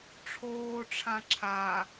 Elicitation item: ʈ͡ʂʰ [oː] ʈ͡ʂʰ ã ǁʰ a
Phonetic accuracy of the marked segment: correct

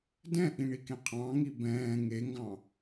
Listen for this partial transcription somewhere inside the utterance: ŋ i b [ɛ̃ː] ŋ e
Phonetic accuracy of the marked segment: correct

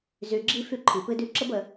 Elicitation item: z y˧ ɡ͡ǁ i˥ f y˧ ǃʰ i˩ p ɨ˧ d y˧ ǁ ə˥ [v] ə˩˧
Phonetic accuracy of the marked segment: incorrect: b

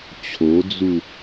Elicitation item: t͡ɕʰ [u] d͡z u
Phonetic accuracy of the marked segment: incorrect: o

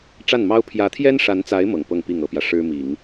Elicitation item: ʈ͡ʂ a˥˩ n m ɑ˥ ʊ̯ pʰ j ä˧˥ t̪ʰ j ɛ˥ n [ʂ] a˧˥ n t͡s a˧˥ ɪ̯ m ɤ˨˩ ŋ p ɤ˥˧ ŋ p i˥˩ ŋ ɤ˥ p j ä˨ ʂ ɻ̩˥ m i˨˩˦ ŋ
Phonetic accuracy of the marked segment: correct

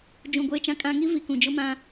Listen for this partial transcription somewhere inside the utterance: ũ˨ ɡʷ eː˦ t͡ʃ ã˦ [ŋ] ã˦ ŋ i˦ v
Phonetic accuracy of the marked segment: incorrect: kʼ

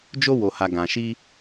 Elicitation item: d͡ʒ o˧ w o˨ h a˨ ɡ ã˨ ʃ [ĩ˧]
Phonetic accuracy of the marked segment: incorrect: i˧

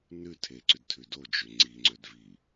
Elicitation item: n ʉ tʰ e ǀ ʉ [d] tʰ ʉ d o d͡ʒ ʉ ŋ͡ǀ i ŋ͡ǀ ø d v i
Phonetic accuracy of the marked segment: correct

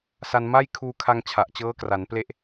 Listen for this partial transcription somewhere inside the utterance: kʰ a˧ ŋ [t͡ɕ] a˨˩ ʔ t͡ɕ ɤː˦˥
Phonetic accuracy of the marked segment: incorrect: t͡ɕʰ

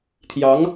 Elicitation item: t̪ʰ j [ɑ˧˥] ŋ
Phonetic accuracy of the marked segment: correct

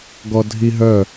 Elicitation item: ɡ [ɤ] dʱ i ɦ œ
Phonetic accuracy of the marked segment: incorrect: ɔ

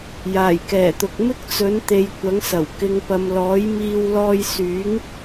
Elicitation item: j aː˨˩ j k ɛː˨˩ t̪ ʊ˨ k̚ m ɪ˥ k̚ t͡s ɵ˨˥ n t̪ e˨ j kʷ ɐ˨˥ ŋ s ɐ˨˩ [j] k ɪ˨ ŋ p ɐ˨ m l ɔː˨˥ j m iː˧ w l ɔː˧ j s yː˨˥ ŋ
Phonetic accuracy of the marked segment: incorrect: w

